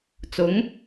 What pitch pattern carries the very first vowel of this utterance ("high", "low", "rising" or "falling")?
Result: rising